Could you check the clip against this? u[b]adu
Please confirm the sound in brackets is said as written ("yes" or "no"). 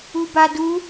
yes